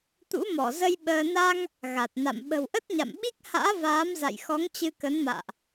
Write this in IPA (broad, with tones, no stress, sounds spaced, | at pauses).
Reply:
t̪ ṵ˧˥ m ɔ˧˩ z ə˧ j ɓ əː˧ n a˧ ŋ | ɣ a˨˩ t̚ n a̰˧˨ m ɓ ə̤˨˩ w ʔ ə˦˥ t̚ ɲ a̰˧˨ m ɓ i˦˥ k̚ h a̰ː˧˥ v aː˨˦ m z a̰˧˨ j x ɔ˨˦ ŋ t͡ɕ ɨ˧ k ə˨˦ n m a̰ː˧˨ ʔ